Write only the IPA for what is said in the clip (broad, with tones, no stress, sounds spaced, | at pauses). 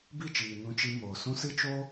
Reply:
b i˦˨ t͡ʃ iː˨ n ũ˧ t͡ʃ i˧ m oː˨ s ũ˦ s ɨ˦ t͡ʃ o˦